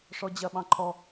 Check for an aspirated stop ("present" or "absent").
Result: present